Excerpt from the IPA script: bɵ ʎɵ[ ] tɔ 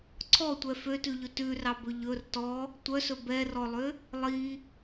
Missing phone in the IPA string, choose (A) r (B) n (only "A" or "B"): A